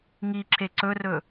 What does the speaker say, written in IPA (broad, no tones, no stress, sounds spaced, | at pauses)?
ŋ i ǁ e ǀ ɵ r ɵ